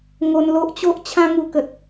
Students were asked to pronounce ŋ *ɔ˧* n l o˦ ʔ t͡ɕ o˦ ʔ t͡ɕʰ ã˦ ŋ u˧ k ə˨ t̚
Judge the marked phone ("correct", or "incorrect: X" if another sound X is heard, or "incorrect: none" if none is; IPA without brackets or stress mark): incorrect: o˧